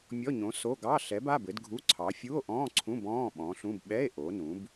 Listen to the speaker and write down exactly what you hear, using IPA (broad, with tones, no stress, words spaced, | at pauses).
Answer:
mʲɔ˧˥˧ɲõ˨˥ so˧˥˧ ɡɑ˧˥˧ ɬɛ˨˥b a˧˥˧bɘ˨˥dɡʱu˧˥˧ǀʰɑ˨˥ fʲu˧˥˧o̯ʔɔ̃ː˧˥˧ǀʰũ˧˥˧b ɔ̃ː˧˥˧ ɓɔ̃ː˨˥ɬũ˧˥˧b ɓɛ˧˥˧e̯ ʔo˨˥nũ˨˥b